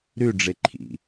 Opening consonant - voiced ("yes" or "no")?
yes